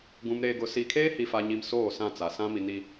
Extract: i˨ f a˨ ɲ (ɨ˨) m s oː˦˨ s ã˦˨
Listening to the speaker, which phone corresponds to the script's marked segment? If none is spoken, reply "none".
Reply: i˨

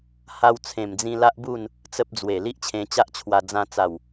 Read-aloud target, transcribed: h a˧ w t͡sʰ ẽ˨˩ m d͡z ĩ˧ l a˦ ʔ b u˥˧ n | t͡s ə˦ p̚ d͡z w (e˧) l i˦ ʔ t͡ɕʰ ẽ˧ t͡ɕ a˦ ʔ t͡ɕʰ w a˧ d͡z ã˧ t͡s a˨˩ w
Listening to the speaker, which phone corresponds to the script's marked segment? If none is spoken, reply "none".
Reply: e˨˩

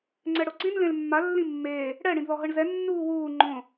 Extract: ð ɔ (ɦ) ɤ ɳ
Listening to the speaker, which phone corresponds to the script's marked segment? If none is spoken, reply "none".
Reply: ɦ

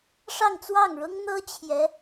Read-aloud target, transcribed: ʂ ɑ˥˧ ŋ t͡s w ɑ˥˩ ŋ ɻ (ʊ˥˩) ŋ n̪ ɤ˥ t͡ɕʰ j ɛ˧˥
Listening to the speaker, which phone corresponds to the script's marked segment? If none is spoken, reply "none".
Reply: ʊ˥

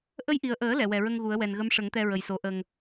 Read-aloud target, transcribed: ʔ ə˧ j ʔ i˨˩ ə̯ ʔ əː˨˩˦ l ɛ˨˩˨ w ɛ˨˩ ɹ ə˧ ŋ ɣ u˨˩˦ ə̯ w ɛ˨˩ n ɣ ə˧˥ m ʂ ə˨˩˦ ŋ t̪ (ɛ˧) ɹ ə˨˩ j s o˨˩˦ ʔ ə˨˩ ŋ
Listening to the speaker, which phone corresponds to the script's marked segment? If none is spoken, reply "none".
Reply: ɛ˧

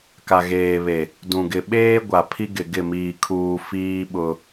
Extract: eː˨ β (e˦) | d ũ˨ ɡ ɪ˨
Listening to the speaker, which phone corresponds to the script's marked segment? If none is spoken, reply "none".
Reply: e˨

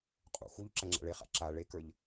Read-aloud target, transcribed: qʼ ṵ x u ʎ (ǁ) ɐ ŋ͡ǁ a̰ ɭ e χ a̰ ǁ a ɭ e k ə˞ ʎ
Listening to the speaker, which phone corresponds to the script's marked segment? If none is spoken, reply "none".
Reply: ǁ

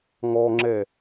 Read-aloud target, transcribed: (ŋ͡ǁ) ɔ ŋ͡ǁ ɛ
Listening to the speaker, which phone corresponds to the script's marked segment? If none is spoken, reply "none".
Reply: ŋ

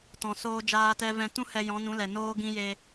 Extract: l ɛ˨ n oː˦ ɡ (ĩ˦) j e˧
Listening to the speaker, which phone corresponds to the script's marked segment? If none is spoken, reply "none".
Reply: ĩ˦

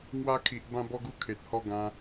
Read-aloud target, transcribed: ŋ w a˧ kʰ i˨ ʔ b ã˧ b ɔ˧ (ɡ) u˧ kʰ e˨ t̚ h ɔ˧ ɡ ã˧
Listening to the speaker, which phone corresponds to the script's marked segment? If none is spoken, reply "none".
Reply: ɡ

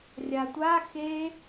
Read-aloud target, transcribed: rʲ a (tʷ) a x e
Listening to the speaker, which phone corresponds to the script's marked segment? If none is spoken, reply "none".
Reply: tʷ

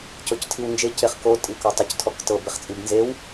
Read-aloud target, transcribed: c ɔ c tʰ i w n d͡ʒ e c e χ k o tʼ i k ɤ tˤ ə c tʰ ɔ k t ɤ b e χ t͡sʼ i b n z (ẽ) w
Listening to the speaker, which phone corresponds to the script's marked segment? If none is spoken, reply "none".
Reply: e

